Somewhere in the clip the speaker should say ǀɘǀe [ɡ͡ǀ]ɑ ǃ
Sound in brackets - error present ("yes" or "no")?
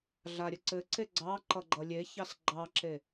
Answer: no